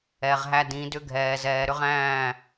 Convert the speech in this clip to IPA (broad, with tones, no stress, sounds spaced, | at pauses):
ɛ˨ ʁ ɦ æ˦ d ĩ˨˦ d ʏ˦ ɡʱ ɛː˨ z ɛː˨ ɾ ʏ˦ ʁ æ̃ː˦˨